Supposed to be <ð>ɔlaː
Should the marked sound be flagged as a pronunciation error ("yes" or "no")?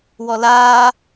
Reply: yes